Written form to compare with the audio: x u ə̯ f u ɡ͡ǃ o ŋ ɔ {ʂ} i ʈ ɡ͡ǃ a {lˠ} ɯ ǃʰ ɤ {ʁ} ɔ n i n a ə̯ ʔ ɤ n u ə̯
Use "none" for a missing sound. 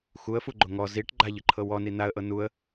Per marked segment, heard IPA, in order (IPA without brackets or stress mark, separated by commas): z, ʎ, w